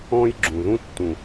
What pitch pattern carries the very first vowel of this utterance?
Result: high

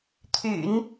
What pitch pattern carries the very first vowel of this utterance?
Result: low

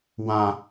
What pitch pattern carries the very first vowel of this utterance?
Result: low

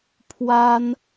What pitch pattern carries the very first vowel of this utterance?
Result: high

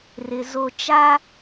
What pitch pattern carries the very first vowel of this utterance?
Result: low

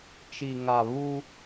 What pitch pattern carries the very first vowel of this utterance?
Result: low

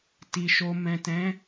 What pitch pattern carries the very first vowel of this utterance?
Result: low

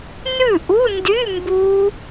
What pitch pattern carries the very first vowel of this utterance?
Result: falling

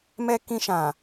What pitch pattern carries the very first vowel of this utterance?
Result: high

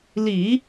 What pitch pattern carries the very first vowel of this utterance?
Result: low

